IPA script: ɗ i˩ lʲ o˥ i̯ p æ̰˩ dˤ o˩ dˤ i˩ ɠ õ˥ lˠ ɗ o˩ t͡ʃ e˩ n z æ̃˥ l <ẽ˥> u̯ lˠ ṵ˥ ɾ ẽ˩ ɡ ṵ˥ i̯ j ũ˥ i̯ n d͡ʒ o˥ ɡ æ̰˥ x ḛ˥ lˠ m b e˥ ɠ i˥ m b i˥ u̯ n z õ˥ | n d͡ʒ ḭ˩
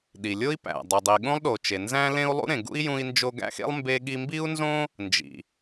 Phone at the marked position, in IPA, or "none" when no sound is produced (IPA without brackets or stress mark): ẽ˥